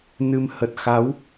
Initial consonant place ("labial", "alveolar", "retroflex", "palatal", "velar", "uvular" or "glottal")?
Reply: alveolar